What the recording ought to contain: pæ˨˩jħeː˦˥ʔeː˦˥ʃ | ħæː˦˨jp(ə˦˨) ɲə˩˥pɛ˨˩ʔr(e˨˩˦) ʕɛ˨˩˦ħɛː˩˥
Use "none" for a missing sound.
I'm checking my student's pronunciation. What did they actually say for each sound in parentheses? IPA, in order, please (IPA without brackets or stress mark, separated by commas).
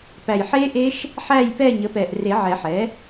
ɛ˦˨, e˨˩˦